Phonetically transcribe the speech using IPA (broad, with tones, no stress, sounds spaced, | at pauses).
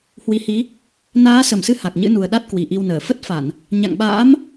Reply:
h w i˨˦ h i˨˦ | n aː˨˦ s ə˧˩ m s ɨ˨˦ h a˨˩ k̚ ɲ ɨ̰˧˥ n u˨˩ ə̯ ɗ a˦˥ t̚ k w i˨˩ ʔ i˧ w n əː˧˩ f ə˦˥ t̚ f a˧˩˨ n | ɲ a̰˧˨ ŋ ɓ a̰ː˧˥ m